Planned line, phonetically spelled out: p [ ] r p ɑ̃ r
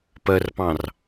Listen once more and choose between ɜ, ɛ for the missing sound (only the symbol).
ɜ